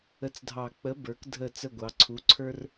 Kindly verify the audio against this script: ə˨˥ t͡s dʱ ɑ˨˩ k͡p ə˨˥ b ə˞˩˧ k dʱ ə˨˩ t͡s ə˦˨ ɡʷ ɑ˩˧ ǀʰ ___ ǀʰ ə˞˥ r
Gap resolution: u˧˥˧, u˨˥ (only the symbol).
u˨˥